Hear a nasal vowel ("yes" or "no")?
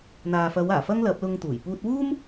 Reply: no